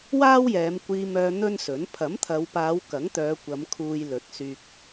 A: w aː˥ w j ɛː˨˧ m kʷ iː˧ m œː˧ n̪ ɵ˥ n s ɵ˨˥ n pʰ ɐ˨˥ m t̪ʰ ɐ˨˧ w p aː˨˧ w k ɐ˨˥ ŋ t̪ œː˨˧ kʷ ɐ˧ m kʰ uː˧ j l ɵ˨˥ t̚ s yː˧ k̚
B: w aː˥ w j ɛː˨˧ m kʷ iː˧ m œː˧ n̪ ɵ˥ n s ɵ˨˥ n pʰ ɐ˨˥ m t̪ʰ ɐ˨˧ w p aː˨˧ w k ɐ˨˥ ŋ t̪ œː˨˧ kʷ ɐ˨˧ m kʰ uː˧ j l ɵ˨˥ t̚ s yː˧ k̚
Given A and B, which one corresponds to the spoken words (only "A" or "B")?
B